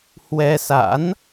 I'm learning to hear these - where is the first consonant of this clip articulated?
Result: throat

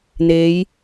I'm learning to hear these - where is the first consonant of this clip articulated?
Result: tongue tip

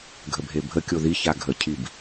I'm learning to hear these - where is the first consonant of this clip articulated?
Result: velum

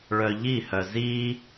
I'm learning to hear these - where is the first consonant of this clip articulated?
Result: retroflex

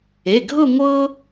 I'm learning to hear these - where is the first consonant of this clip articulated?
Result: velum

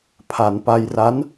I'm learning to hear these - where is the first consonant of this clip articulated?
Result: lips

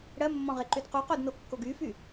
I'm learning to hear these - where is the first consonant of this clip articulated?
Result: retroflex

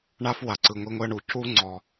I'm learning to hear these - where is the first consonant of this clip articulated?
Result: retroflex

